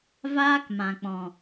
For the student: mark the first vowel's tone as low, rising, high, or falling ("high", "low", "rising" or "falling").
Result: high